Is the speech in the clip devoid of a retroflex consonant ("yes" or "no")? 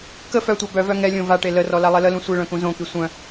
no